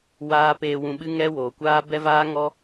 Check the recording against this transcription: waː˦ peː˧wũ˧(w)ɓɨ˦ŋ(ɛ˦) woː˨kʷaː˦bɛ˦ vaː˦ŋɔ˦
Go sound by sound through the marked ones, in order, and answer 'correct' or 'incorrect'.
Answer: incorrect, correct

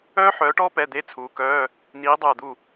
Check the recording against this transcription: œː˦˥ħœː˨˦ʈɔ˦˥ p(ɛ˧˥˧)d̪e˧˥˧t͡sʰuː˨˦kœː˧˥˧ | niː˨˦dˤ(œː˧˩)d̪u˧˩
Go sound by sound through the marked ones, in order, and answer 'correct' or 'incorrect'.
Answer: correct, correct

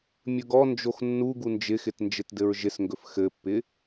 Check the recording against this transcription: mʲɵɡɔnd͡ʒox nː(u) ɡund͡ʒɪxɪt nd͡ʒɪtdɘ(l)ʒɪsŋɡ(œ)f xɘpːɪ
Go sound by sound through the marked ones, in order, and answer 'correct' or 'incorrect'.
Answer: correct, incorrect, incorrect

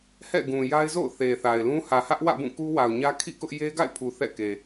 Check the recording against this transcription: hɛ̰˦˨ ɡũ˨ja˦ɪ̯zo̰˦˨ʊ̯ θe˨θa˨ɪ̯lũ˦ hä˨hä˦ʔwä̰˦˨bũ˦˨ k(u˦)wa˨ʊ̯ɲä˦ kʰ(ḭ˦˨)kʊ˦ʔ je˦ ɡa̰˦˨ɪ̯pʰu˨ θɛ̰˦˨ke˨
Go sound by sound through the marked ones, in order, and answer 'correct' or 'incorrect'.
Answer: correct, correct

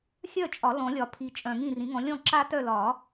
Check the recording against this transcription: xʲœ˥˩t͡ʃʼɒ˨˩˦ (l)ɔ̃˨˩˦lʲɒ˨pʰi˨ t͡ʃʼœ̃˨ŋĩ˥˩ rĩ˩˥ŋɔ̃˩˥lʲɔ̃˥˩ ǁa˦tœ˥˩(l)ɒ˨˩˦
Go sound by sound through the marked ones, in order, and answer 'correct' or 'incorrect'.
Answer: correct, correct

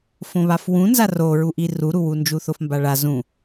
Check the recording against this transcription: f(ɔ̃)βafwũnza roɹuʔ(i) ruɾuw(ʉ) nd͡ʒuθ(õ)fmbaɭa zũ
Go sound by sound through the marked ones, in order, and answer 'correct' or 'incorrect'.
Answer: incorrect, correct, incorrect, incorrect

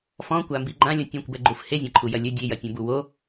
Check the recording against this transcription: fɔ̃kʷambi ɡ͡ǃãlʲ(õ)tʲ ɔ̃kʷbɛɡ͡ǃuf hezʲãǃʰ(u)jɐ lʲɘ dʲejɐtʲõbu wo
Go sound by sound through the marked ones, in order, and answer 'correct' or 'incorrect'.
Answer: correct, correct

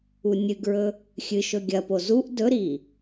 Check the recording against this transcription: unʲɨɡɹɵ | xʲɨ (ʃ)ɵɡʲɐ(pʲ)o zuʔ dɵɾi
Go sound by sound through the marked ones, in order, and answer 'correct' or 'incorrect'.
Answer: correct, incorrect

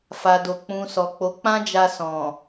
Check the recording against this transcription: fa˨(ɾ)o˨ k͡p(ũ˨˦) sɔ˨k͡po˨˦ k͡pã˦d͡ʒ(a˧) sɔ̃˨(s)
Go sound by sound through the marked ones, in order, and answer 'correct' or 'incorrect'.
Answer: incorrect, incorrect, correct, incorrect

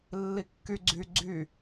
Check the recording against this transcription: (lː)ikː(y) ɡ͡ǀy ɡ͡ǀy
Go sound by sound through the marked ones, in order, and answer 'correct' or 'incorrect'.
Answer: correct, correct

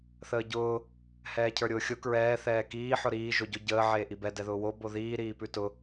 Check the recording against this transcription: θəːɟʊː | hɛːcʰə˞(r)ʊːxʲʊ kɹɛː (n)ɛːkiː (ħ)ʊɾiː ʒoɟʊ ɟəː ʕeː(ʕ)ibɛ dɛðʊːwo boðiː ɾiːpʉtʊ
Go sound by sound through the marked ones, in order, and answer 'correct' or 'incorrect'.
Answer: incorrect, incorrect, correct, incorrect

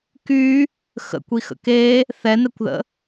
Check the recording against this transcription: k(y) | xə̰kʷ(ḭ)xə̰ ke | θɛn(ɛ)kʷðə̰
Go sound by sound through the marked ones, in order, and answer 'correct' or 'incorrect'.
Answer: correct, incorrect, correct

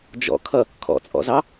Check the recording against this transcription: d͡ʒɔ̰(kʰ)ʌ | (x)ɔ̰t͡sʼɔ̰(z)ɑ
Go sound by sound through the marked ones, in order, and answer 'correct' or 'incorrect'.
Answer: correct, incorrect, correct

